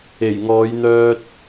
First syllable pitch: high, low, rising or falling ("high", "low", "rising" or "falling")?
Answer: low